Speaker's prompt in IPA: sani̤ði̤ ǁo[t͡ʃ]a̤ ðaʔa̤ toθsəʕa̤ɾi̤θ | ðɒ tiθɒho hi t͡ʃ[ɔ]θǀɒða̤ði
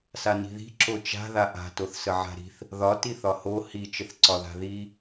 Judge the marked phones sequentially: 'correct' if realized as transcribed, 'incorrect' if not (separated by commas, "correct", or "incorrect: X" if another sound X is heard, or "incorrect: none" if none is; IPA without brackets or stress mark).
correct, incorrect: ə